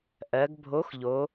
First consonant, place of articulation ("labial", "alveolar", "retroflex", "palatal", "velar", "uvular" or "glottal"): glottal